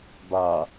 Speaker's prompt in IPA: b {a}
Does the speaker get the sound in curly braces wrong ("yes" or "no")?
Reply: no